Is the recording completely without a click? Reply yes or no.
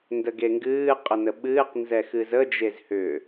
yes